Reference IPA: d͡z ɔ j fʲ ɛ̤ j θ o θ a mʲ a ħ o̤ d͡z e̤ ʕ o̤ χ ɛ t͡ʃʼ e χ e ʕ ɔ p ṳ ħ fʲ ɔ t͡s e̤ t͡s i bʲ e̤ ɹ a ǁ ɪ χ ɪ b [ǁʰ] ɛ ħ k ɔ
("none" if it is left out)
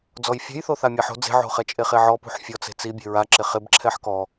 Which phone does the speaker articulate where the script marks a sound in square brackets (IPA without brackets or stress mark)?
ǁʰ